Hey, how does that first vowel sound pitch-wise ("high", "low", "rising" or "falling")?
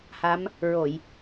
rising